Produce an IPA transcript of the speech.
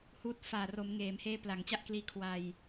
huː˦˥t̚ faː˨˩ro˩˦m ŋeː˩˦mheː˦˥ pla˩˦ŋt͡ɕa˥˩ʔkliː˦˥ kʰwa˧j

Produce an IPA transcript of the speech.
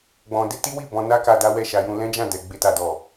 ɡ͡bɔ̃˧de˦ti˦wi˦˨ bɔ̃˧na˦ka˧ da˦wɛ˦˨ʃa˧ jũ˧lɛ̃˦d͡ʒã˦˨dɛ˨ ɡ͡be˧ta˨dɔ˨

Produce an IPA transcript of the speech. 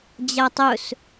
d͡ʑatˤɵs

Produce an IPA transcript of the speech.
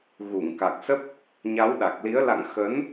ɣu˧˩ŋka˨˩k̚sə˦˥p̚ | ɲa˨˦wɗa˨˩k̚li˨˦ə̯ la̰˧˨ŋ xə˨˦n

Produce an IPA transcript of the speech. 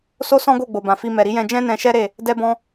so˦sɔ̃˦ɡo˦˨ ɡ͡bo˨bã˨fi˧ mɛ˨ɾi˨˦jɛ̃˧ d͡ʒɛ̃˦nɛ̃˧ʃɛ˦ ɾe˦˨ | dɛ˦bɔ̃˦

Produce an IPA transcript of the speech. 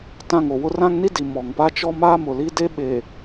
tã˦˨ŋo˨wʊ˦ rã˦ŋni˦ di˨mɔ˨ŋpa˦ t͡ʃɔ˦ maː˦mʊ˨li˦de˦ ɓeː˨

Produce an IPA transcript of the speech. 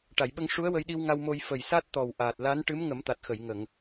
ʈa˨˩˨jɓə˧ŋ ʂu˧˥ə̯wə˧jɗi˧wŋa˧w mo˧j fə˨˩jsa˦˥t̚t̪ɔ˨˩w ʔaː˨˩t̚ la˧˥nʈɨ˧˥m ŋə˨˩˦mt̪a˨˩t̚xə˨˩˨j ŋə˨˩˨ŋ

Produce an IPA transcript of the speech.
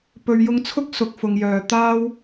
pɵ˨ɥjʊ˧ŋt͡sʰʊ˥k̚ sʊ˨k̚fʊ˨ŋjœː˨ t̪aː˥w

